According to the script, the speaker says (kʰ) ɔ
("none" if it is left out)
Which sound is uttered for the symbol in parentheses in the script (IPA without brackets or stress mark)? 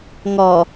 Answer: ŋ